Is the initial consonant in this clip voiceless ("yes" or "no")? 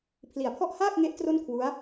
yes